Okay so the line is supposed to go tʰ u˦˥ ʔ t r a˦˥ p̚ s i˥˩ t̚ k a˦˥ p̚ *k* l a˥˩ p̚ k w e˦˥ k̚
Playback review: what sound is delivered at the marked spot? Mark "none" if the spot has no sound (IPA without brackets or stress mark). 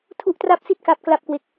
k